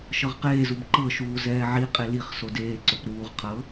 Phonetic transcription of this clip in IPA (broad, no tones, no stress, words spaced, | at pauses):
ʃɤʁqeːzub ǃɤʃuː zɛːʕiqʼe liχ sodeːǀop ɾuːʁ qʰɤ